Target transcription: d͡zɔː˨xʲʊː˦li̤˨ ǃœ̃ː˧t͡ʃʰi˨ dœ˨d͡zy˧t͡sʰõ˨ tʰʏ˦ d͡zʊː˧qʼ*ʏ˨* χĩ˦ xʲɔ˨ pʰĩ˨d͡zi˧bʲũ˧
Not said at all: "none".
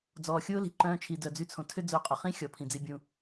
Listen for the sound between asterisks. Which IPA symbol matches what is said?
ʏ˨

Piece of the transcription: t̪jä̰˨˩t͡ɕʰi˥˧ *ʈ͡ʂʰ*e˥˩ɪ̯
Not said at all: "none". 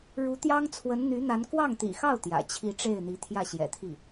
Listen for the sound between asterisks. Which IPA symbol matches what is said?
ʈ͡ʂ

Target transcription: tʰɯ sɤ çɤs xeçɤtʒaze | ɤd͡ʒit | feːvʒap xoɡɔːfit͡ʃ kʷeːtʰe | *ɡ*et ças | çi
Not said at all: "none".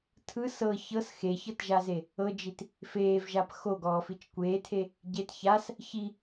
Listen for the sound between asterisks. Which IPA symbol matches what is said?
ɟ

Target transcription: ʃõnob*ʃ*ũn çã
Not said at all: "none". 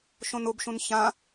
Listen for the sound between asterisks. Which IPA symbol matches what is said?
ʃ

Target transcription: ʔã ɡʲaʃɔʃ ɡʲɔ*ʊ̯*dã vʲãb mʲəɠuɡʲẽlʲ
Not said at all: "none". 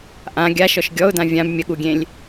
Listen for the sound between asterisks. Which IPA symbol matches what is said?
ʊ̯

